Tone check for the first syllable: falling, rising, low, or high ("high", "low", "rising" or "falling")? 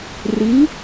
rising